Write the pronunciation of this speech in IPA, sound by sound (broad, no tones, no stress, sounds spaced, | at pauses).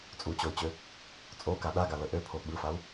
t͡sʼ u t͡ɕ o y̯ t͡ɕ ø | t͡sʼ o k a ɗ a ɡ a l ə ʔ ø pʰ o ɓ ɯ f a u̯